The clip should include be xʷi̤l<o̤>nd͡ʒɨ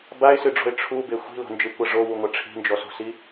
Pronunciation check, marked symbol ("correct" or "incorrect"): correct